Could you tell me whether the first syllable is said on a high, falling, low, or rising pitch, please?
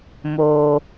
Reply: high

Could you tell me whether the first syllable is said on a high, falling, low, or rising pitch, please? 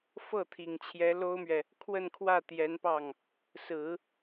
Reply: falling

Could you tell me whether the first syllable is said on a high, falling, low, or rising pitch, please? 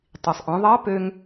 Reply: low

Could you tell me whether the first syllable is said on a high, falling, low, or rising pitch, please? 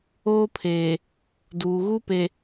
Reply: high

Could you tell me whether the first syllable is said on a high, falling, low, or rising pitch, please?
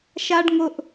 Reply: high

